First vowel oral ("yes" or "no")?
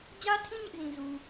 yes